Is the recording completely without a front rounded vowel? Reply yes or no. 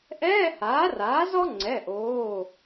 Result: yes